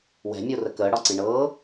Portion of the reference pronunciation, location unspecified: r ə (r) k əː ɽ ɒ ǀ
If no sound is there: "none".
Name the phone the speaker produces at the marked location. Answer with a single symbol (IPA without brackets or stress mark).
none